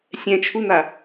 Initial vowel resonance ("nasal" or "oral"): nasal